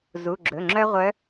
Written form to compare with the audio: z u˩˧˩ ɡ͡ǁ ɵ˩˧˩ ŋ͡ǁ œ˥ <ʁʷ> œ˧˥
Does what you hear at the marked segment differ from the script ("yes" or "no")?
no